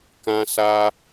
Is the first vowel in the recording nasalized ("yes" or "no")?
yes